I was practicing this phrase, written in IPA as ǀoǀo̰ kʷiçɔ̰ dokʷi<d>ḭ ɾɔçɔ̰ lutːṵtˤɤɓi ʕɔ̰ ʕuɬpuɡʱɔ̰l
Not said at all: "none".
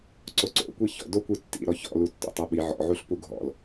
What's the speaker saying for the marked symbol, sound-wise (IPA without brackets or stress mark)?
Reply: tː